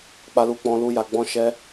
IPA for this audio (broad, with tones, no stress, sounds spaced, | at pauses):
k͡p a˦ l u˦ k͡p ɔ̃˦ l u˦ j a˧ ɡ͡b ɔ̃˦ ʃ ɛ˦